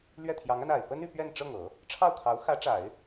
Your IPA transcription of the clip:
l ɥ ɛ˥˩ t̪ʰ j ɑ˧˥ ŋ a˧ n a˨˩ ɪ̯ p ə˥ n y˥˧ p ɥ ɛ˥˧ n ʈ͡ʂ ɤ˥˩ ŋ ɤ˨˩˦ | ʈ͡ʂʰ ɑ˥˩ ʊ̯ kʰ ɑ˧˥ ʊ̯ x ä˧˥ ʈ͡ʂ a˨˩˦ ɪ̯

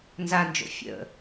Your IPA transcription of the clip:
n z a n d͡ʒ o̰ fʲ ə̰

